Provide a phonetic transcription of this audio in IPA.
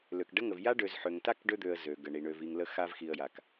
lø˨kɖə˦ŋə˨v ja˦ɖø˨z ħø˨ŋta˦k ɖø˦d̪ø˨ə̯ zø˨ɡə˨ɳi˨ ɳø˨vi˨ŋ lə˨xa˨v xi˨ə̯ ja˨k

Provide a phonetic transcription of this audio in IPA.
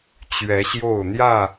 t͡ɕɥɛ˨˦ɕjo˥˨ʊ̯ n̪jä˥˨

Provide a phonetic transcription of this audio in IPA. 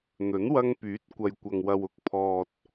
n̪ɵ˨˥nwɐ˧ŋpyː˨˥t̚ kʷɐ˨jkʷɐ˨ŋwɐ˨w ʊ˧k̚pʰɔː˨t̚

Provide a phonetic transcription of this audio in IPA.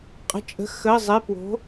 qʼə̤˩˧˩t͡ʃʼə̤˩˥ xə˩˧˩zˤe˩˧˩ pwo̤˩˥

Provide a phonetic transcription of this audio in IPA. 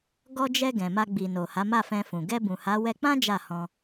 ɡɔ˧d͡ʒɛ˧ ɡɛ̃˨ma˧ɡ͡bi˨no˨ ha˨˦ma˦˨fɛ̃˧fũ˨ ɡɛ˧bũ˨ha˨˦ wɛ˧k͡pã˦ d͡ʒa˦˨hɔ̃˧

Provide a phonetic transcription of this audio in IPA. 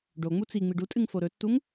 ɖo ŋ͡mut͡si ŋ͡miɖutʼɨŋ foɾɵtːuŋ

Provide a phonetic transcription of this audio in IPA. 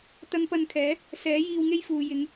t̪ɐ˧ŋpɐ˧nkʰɛː˨˥ | sɛː˨˥ jiː˧wŋe˥jfuː˨ jɪ˨˧ŋ

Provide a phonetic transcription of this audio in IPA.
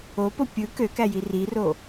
opo pʲɯ køkæji riro

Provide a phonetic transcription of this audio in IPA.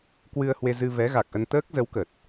kwɨ˧ə̯hwe˧zɨ˧ vɛ˨˦ɣa˨˩k̚ʔə˧n t̪əː˦˥k̚ zə˨˦wkə˨˩t̚

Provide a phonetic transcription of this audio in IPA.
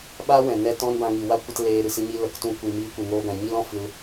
ɓaː˦wɛ̃˨ nɛ˧ tɔ̃˦nbã˧ŋi˨ wa˦kʷə˧t leː˧ɾɨ˨sɨ˧ɲi˧ lə˨ktũ˧ kʷi˧ miː˧kʷɨ˨ŋoː˧ɡã˨ ɲi˦lɔ̃˧ fɨ˧l

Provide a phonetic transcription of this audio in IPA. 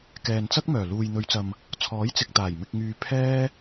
kɛː˨nt͡sɐ˥k̚mœː˨˩ luː˨jn̪ɵ˨˧ɥt͡sɐ˨m | t͡sʰɔː˨˥jt͡sɪ˨k̚t̪aː˨˩j mɪ˨k̚ŋyː˨ pʰɛː˧

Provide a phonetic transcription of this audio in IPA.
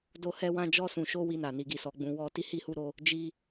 do˧hɛ˧wã˧d͡ʒɔ˧ sũ˨ʃo˧ wi˧na˨ ni˨ɡi˨sɔ˨ɡ͡bũ˨ wɔ˧ ti˧hi˧hu˧ɾo˧ | d͡ʒi˧

